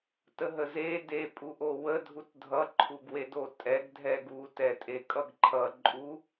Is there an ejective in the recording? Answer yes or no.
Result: yes